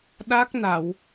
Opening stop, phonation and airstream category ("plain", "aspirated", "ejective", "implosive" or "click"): implosive